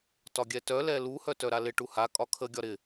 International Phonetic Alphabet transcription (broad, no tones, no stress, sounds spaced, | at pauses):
t ɒ ɡʲ ɛ t œ l ɛ l u h œ t œ ɾ a l ɪ ʈ u h a kʼ ɒ kʰ ə ɡʲ ɒ ɾ ɪ